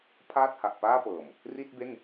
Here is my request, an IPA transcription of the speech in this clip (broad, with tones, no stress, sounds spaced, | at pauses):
pʰ aː˥˩ t̚ h a˨˩ ʔ p aː˥˩ p ɤː˨˩ m | r i˥˩ t̚ b e˥˩ n